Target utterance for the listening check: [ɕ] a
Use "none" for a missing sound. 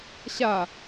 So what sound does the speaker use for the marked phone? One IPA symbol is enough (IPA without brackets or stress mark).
ɕ